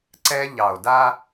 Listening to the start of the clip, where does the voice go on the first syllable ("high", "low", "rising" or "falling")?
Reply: high